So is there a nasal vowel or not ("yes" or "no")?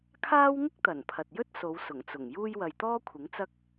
no